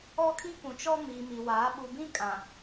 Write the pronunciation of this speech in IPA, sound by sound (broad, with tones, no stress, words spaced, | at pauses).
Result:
ɔ˦kʰi˦kũ˨t͡ʃɔ˦ miː˨mi˨waː˨˦ ɓu˨bĩ˦kʼã˨